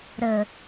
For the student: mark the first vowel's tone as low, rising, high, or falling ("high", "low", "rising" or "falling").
low